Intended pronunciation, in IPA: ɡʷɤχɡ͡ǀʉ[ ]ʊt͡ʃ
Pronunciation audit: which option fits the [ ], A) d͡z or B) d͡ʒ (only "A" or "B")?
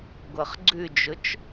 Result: B